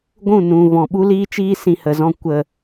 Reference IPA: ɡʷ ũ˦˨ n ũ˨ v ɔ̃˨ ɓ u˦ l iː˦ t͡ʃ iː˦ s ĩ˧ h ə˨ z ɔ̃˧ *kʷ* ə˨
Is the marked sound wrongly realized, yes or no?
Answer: no